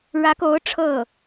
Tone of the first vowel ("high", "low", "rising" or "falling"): rising